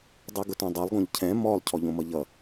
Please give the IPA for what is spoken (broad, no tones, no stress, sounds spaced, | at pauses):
dˤ ɯ ɡ ʊ t õ dˤ o lˠ ɡ õ ʎ cʰ ɛ̃ m ɔ lˠ cʰ ɔ ʎ õ m ʌ ʎ ʌ